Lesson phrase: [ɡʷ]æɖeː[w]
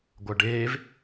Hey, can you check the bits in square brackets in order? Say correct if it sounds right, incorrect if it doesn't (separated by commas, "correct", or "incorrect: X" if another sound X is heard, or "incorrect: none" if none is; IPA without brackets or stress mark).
correct, incorrect: v